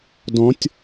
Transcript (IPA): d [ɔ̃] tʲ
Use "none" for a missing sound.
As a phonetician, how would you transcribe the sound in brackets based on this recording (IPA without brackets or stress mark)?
ɔ̃